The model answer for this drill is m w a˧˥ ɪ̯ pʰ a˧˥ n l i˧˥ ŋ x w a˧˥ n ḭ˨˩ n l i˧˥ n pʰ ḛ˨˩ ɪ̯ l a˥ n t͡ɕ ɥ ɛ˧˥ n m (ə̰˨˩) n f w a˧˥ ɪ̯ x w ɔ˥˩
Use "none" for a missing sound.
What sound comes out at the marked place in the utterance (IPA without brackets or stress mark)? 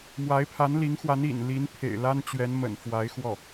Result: ə̰˨˩